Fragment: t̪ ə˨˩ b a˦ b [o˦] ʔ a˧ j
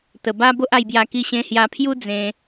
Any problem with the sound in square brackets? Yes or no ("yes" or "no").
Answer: no